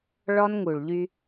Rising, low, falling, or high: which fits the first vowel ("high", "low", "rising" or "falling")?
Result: high